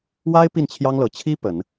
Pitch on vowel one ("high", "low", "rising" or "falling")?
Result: high